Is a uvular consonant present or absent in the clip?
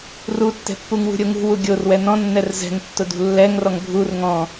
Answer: absent